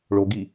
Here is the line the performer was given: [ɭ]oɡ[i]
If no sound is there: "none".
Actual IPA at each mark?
ɭ, i

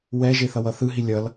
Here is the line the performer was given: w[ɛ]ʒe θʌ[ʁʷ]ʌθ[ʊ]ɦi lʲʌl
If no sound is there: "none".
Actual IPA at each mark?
ɛ, w, ɯ

